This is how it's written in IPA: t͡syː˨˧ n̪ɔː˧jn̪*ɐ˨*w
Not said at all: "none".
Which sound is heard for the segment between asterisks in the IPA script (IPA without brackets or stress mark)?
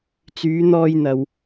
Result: ɐ˨